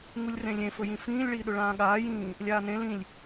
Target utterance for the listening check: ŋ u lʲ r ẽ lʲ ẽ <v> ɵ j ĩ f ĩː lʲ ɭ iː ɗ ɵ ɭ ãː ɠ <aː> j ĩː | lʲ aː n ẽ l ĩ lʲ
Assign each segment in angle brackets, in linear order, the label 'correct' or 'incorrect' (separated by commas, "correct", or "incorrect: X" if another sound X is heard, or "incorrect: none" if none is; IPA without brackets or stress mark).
incorrect: f, correct